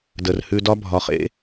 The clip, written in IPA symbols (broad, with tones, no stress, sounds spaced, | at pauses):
d ə˩ r h ʉ˨ d ɒ˦ bʱ ɒ˩ χ ḛ˦